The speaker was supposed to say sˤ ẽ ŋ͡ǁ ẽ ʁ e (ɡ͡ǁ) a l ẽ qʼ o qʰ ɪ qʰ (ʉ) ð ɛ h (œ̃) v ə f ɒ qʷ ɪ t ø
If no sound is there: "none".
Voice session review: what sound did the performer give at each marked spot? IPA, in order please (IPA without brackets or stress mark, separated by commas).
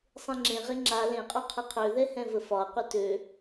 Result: ŋ͡ǁ, ø, ɛ̃